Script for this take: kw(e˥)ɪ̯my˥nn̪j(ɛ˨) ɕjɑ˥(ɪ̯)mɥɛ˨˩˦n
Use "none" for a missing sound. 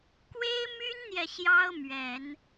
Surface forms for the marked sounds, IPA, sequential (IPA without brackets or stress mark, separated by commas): e˥, ɛ˨, ʊ̯